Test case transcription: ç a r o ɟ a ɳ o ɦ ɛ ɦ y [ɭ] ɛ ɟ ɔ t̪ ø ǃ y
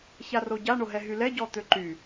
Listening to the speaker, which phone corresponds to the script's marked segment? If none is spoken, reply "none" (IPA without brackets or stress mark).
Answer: l